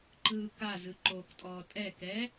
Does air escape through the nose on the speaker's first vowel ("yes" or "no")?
no